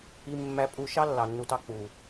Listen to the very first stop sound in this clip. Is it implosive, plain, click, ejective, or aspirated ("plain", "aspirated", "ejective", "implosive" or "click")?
ejective